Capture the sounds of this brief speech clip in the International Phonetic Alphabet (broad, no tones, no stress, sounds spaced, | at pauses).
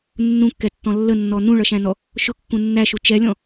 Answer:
nː ũ kː ɛ tː ɔ̃ lː ə nː ɔ n ũ ɭ ʌ ʃ æ̃ n ɔ | ʃ ʊ kː ũ nː æ ʃ u t͡ʃ ɛ lʲ ɔ̃